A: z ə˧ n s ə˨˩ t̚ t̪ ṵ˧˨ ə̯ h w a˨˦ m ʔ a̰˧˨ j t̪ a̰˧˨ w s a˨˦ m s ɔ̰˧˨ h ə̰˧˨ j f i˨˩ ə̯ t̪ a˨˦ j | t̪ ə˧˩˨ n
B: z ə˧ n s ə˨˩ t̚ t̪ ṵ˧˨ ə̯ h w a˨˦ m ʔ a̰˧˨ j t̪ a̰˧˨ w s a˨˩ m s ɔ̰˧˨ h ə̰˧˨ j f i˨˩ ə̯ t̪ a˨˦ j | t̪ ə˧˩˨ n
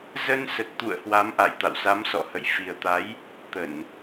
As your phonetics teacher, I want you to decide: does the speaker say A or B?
A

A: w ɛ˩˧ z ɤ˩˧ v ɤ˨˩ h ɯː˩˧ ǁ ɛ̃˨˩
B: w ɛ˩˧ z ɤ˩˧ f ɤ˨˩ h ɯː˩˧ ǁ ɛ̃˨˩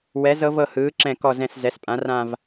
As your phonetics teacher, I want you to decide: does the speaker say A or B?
A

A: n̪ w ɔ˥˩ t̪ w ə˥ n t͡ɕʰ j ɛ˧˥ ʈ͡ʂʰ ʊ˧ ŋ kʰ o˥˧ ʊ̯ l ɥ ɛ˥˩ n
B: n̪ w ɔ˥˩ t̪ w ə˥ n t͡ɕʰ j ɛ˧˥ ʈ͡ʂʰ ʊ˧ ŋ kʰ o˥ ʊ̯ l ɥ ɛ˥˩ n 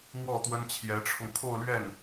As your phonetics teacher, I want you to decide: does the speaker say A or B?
A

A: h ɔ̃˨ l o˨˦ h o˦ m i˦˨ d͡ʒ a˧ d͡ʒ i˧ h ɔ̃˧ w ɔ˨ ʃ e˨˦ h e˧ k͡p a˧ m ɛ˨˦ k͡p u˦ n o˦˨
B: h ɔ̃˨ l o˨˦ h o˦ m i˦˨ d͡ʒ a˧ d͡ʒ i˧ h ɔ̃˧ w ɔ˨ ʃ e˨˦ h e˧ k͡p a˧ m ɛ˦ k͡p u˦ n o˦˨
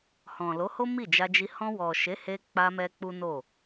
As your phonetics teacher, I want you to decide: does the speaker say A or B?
B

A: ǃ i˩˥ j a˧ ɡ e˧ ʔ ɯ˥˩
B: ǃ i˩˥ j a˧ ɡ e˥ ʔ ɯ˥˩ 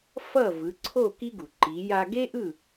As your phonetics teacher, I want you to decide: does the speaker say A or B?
B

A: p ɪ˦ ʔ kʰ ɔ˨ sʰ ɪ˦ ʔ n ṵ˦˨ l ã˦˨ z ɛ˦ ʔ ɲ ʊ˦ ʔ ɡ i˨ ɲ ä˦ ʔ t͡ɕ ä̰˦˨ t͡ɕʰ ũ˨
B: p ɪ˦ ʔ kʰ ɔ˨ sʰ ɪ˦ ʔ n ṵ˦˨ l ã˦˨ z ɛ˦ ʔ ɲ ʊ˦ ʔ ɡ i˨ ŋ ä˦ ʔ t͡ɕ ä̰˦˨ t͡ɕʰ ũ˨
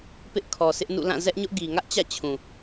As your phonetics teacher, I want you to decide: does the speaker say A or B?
B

